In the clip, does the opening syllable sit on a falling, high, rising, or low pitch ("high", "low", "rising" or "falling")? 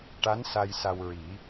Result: rising